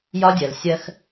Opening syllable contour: high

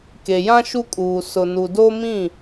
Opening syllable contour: low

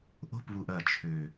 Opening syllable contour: falling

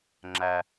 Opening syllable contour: low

